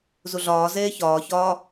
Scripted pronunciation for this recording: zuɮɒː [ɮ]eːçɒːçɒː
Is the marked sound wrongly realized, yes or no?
yes